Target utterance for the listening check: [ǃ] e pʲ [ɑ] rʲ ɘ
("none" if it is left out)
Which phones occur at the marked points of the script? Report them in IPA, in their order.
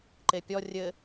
ǃ, ɔ

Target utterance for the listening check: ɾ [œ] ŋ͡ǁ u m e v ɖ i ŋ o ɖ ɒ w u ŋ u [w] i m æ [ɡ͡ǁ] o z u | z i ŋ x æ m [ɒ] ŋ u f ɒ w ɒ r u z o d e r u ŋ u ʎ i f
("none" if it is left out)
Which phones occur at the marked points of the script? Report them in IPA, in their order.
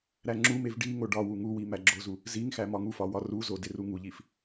æ, w, ɡ͡ǁ, ɒ

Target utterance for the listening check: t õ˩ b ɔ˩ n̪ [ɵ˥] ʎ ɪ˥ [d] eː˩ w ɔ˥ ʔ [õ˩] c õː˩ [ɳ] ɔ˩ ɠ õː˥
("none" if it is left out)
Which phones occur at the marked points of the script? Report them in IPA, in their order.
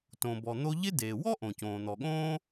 o˥, d, õ˩, n̪

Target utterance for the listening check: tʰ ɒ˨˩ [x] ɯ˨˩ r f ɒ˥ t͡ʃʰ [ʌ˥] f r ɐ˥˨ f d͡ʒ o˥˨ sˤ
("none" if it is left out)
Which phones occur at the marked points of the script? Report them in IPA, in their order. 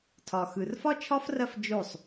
x, ɒ˥

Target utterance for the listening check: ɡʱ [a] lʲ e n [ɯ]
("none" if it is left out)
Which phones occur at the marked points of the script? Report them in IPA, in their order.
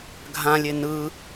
ã, ɯ

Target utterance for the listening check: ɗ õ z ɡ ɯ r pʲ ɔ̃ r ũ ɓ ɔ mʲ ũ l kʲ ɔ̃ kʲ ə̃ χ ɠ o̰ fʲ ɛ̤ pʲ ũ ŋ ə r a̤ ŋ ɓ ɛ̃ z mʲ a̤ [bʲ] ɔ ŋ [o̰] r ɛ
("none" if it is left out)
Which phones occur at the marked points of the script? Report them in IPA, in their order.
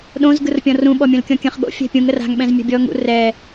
bʲ, ṵ

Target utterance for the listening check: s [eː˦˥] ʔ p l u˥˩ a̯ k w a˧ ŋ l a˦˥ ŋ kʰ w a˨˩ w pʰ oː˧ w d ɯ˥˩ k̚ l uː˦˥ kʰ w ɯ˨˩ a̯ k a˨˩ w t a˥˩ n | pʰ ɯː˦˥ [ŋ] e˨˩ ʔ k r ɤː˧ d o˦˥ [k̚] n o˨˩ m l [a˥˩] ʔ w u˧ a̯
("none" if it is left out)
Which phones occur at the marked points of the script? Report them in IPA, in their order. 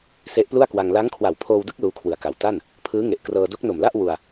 e˦˥, ŋ, k̚, a˥˩

